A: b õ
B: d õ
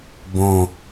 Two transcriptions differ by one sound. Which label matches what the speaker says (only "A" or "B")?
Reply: A